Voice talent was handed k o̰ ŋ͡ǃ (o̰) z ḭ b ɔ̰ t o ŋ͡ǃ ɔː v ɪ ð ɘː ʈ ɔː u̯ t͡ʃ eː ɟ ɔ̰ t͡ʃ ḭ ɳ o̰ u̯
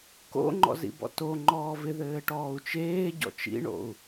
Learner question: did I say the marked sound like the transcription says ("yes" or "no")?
no